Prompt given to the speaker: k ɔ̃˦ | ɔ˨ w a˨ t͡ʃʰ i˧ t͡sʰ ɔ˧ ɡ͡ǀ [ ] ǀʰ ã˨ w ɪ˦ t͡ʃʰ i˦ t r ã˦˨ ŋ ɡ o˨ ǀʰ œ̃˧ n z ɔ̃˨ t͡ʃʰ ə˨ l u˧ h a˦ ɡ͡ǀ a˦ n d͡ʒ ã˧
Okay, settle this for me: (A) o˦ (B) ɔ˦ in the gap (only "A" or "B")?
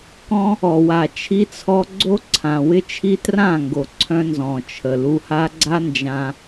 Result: A